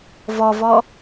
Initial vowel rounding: rounded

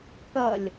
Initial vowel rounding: unrounded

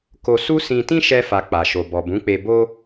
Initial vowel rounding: rounded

